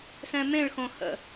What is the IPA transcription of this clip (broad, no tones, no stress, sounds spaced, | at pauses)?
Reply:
s ɛ̃ m ẽ ɭ x õ h ə̰